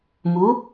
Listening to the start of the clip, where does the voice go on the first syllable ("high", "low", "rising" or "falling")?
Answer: rising